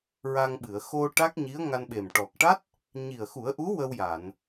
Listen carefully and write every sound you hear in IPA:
ɹa˧ŋ ɓɨ˨˩˨ə̯xo˧ ʈa˦˥k̚ɲi˧˥ə̯ŋa˧nɓe˨˩m ʈɔ˨˩k̚ʈa˦˥t̚ | ɲi˨˩ə̯xu˨˩˦ə̯ʔu˧˥ wə˧wja˨˩˨n

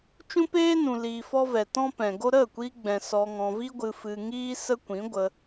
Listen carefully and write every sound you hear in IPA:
t͡ʃũ˦peː˦nũ˨ liː˧fɔ˦ vɛ˨tɔ̃˦pɛ̃˨ ɡo˦ ɾə˦˨kʷi˧ɡ͡bɛ̃˨ sɔ˧ŋɔ̃˧ vi˦ ɡʷɨ˧fɨ˧ ŋiː˦sə˦kʷĩ˨˦ɡʷə˧

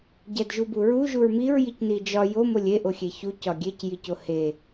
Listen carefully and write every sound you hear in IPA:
ɟædʒubuɹu ʒuɹmiɹ jicnid͡ʒɒ jo molʲe ʔoxʲeçu cɒɡʲec jicohe

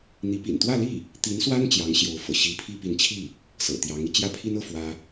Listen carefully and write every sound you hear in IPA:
n̪i˧˥ pḭ˨˩nt̪wä˥˧li˥˩ | t̪i˧˥nswa˥n t͡ɕjɑ˧˥ŋɕjo˧˥ʊ̯fɤ̰˨˩ ɕi˧˥pʰi˥pi˧˥nt͡ɕʰi˥˩ | sɤ̰˨˩t̪jɑ˧˥ŋi˧ t͡ɕjä˥˩pʰi˥nɤ˥˩ fwä˥

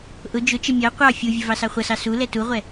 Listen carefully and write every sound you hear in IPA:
ʔʊ d͡ʒʊt͡ʃə mʲɑ qʷɑ fʲuvʲə vɑsɑχʷʌsɑ su lɛtuʁʷɛ

